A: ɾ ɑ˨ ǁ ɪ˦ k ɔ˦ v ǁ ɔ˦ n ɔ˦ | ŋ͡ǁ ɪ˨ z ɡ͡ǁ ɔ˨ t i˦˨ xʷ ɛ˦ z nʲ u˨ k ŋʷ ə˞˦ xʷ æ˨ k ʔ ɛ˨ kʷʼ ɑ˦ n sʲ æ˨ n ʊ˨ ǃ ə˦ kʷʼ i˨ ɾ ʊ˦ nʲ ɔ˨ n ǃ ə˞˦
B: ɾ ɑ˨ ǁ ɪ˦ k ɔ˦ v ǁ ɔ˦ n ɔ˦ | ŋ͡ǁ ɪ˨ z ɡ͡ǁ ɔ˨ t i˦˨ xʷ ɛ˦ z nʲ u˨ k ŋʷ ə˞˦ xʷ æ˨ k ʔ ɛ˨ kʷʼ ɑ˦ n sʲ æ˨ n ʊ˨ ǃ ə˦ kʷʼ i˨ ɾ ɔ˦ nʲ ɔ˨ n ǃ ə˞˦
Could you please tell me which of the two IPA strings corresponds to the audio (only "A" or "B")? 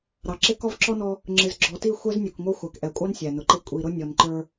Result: A